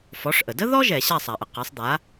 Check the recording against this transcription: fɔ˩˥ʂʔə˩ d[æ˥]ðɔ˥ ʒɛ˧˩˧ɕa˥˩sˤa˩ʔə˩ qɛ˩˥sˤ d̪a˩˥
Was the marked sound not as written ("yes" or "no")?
yes